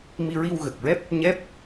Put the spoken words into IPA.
mi˧ɹi˧wɣə˨˩k̚ɹɛ˦˥p̚ | ɲɛ˦˥p̚

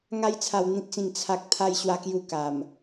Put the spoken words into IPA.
ŋa˧jt͡sʰa˨˩wn̪ĩ˨t̚t͡sĩ˨˩ŋ t͡sʰa˨k̚ t̪ʰa˧jɕwa˧ kju˧ka˨˩m

